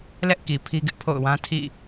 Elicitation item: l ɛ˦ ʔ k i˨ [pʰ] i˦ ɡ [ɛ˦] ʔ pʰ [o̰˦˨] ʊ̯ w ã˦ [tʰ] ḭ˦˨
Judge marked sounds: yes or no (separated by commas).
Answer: yes, no, yes, yes